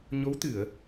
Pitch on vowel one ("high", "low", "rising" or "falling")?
rising